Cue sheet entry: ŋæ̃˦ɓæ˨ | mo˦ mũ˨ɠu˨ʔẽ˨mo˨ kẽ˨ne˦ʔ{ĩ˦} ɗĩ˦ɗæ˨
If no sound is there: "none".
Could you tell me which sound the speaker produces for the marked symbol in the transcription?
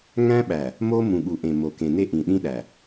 ĩ˨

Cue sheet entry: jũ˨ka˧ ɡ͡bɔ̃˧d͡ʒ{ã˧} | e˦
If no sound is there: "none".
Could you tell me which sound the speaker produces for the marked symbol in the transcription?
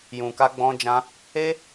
ã˧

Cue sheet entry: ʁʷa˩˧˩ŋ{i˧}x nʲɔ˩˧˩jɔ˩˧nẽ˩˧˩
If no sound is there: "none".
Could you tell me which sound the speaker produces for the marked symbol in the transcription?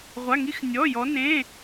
i˧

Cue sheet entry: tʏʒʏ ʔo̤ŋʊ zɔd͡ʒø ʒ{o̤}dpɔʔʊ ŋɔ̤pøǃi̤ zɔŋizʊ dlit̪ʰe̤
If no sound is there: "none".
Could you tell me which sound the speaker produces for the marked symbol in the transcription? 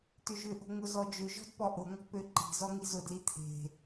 ɔ̤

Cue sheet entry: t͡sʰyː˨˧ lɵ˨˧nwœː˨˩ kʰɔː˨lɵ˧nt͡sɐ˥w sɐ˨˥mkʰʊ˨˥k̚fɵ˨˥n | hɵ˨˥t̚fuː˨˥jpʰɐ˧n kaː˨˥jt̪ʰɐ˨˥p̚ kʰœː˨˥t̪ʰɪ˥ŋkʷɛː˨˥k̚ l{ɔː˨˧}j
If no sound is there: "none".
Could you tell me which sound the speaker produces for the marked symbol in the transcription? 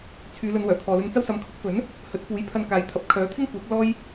ɔː˥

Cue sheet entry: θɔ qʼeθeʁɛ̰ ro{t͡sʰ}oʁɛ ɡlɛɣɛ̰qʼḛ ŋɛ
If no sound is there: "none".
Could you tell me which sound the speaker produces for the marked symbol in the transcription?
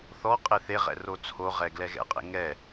t͡sʰ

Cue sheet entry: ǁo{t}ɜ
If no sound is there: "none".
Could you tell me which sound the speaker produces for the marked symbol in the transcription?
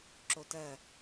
t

